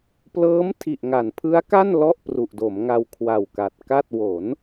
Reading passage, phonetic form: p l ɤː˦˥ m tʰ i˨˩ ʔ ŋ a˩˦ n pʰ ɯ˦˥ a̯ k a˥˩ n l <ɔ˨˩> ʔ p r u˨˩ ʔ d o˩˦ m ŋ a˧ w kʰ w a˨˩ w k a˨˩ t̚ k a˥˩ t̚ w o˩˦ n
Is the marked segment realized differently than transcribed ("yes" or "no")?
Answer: yes